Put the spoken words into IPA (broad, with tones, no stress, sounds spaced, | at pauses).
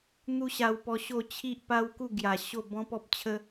n̪ u˦ ɕ a˧ w p ɔ˧ ɕ o˥˧ t͡ɕʰ i˦ ʔ p a˦ w k u˥˧ ɡ j a˨˩ ɕ o˥˧ b ɔ̃˦ p ɔ˦ p̚ t͡ɕʰ ə˦